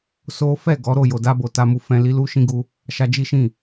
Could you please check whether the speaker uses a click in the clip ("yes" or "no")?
no